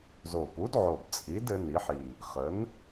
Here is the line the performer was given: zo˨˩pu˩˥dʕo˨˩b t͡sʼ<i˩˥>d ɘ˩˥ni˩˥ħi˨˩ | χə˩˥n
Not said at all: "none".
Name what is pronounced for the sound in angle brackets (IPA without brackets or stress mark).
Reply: i˩˥